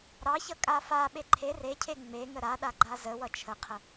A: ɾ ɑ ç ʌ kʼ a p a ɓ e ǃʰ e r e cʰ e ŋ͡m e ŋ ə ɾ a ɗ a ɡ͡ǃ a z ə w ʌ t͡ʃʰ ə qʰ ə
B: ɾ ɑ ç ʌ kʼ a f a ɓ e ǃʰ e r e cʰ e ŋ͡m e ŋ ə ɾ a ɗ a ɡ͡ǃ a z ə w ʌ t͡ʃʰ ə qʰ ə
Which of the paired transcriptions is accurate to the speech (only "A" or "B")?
B